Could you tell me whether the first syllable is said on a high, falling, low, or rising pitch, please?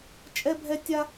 high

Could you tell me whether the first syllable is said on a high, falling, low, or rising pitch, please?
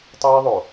high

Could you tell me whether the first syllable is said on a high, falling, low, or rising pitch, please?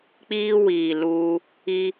high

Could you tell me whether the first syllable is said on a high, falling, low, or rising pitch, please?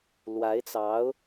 rising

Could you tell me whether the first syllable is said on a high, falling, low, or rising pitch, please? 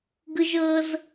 high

